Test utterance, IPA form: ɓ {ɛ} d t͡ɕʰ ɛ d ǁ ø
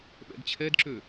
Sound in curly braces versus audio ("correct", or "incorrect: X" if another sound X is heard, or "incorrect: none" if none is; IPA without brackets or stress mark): incorrect: ɛ̰